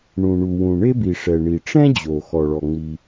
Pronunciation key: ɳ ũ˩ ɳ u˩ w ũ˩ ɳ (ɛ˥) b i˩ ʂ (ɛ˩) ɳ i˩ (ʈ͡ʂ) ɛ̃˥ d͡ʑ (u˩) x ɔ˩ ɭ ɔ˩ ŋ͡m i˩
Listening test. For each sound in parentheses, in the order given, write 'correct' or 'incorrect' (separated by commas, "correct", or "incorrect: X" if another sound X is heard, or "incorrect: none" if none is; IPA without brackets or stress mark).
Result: incorrect: e˥, correct, correct, incorrect: o˩